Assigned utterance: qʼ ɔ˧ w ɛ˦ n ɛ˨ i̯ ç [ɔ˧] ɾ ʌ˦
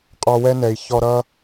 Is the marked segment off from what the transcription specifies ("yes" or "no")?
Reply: no